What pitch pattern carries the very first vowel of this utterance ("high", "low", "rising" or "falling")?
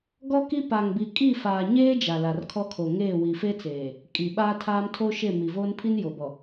high